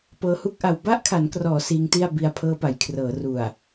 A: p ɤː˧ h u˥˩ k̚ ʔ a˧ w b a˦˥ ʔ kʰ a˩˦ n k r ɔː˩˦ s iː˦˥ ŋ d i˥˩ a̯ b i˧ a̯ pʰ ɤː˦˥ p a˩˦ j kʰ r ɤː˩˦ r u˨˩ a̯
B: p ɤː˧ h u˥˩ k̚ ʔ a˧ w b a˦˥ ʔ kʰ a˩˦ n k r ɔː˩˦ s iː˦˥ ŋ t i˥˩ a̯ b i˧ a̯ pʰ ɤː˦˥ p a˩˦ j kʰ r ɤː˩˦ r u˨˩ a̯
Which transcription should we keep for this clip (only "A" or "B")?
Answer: B